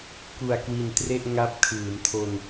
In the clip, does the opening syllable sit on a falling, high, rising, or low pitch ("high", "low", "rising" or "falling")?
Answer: low